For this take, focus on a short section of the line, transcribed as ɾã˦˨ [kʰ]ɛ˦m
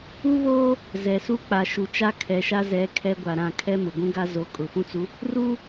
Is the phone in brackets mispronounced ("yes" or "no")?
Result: no